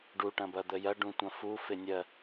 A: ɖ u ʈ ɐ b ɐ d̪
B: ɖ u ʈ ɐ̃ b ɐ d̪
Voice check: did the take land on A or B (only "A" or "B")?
B